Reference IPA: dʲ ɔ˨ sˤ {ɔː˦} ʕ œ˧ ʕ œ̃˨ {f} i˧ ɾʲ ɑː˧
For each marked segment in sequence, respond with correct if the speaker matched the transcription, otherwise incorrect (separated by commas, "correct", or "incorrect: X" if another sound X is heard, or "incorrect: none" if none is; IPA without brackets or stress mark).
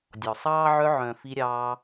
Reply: incorrect: ɑː˦, correct